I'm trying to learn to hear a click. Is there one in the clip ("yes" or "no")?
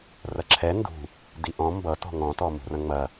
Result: yes